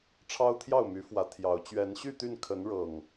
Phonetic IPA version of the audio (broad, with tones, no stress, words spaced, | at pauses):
ʈ͡ʂʰɑ˦ʊ̯t̪ʰjɑ˥˨ʊ̯my˨˦fwä˨˦ t̪ʰjɑ˨˦ʊ̯ t͡ɕɥɛ˨˦nɕy˥˨t̪y˥˨nkʰə˨˦n ɻɤ˨˩ŋ